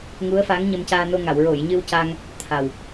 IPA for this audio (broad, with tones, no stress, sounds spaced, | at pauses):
ŋ u˧˥ ə̯ f a˧˥ ŋ ɲ ə˧ m c aː˧ n o˧ ŋ a˨˩˨ w ɹ o˨˩˨ j ɲ ɨ˧ w c a˧ ŋ | t̪ʰ a˨˩ w